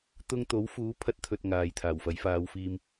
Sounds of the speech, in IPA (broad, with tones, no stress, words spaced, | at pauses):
t̪ʊ˧ŋt̪o˨˥wfuː˨˥ pʰɐ˥t̚t̪ʰɵ˧t̚ ŋaː˨jt̪ʰaː˨˩wfɐ˨˥j faː˨˧wfiː˧m